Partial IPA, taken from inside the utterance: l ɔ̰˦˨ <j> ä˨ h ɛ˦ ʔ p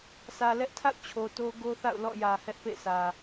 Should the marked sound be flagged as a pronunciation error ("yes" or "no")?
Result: no